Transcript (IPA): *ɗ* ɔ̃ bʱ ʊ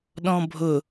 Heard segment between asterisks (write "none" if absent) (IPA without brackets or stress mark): ɗ